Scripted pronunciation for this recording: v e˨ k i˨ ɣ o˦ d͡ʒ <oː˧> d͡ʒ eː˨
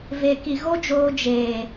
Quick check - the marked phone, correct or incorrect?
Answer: correct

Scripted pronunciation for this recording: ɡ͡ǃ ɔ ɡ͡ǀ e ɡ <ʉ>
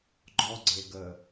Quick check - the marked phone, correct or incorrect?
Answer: incorrect: ə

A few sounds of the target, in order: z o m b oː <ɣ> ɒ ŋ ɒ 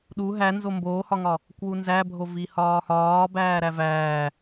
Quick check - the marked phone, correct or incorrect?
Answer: incorrect: h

